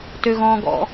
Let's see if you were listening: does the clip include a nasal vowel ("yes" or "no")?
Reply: yes